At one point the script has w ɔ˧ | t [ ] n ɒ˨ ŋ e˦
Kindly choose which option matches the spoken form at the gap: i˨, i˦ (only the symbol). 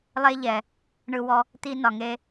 i˦